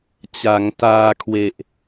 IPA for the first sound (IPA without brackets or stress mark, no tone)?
t͡ɕ